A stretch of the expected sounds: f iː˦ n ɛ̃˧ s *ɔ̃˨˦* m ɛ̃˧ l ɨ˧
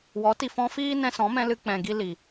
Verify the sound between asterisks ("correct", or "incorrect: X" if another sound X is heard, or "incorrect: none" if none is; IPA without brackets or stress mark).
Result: correct